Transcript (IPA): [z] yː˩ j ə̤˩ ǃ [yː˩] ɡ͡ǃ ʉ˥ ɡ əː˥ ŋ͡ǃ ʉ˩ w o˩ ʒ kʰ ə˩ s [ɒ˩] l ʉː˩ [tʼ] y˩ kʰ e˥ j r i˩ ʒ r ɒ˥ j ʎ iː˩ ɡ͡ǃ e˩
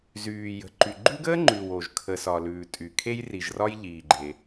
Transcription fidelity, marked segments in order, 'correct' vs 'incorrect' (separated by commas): correct, incorrect, correct, correct